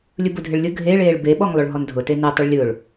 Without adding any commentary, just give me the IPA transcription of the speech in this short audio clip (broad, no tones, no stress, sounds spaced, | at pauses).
lʲ ʊ b ʊ dʱ ɪ ɭ lʲ ʊ ɡʱ e ɭ eː ɭ b e ɓ ɔ ŋ lˠ ʊ ɭ ɦ ɔ n dʱ ʊ t e n e tˤ ɪ ɭ lʲ ʊː ɭ